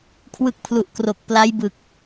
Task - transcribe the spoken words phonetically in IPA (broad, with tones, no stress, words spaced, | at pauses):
kʰwɯ˦˥k̚ pʰlu˨˩ʔkro˨˩k̚ pla˦˥jbɯ˨˩k̚